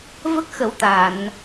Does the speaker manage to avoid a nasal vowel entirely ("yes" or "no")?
yes